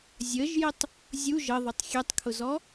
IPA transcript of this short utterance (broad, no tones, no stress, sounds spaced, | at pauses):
zʲ ə ʒ j ɪ tˤ | zʲ u ʒ ə ðˤ ʊ tˤ xʲ ɛ tˤ kʰ ʊ z ɔ